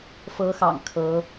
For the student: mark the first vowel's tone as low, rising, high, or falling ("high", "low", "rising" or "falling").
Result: rising